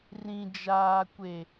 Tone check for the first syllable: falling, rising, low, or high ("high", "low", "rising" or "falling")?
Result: low